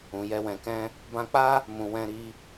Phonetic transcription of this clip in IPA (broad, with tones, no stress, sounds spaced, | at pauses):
ũ˨ j ɛ˧ w ɛ̃˨ k ɛ̃˧ | b ã˧ k͡p a˦ | m ũ˨ w ɛ̃˧ ɾ i˧